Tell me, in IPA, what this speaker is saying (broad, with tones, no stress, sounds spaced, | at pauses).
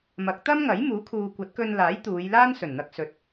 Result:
m ɐ˨˥ k̚ t̪ ɐ˥ m ŋ ɐ˨˥ j m uː˨˥ kʰ uː˨ kʷ ɐ˨˥ t̚ k ɵ˧ n l aː˨˥ j t̪ uː˨˧ j l aː˥ n s ɵ˨˩ n n̪ ɐ˧ k̚ s ɵ˨ t̚